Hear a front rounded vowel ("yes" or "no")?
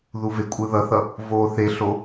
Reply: no